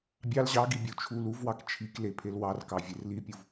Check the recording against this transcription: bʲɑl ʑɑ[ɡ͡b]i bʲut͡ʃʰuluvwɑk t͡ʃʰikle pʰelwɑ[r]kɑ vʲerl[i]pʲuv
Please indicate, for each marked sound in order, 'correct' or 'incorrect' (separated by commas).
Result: incorrect, correct, correct